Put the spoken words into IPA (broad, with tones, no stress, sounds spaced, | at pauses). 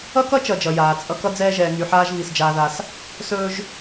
ʌ˥ k ʌ˥ t͡ʃ ʌ˨ d͡ʒ ʌ˩ j aː˩ t͡sʼ ʌ˦ k ʌ˥ d͡z ɛː˦ ʒ ɛː˩ ŋ y˨ ħ aː˦ ʒ β i˩ s d͡ʒ aː˨ ð a˨ s | s ɵː˦ ʒ